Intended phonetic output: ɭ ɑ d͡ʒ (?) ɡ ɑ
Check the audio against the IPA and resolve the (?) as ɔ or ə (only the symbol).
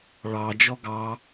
ɔ